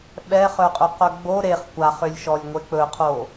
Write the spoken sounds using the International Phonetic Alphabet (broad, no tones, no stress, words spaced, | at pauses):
ɓɛχœqʼɵqœ ɡ͡bo ɾeχ kʷaχʏlʲʃɔlʲŋʷe k͡pɵqʰo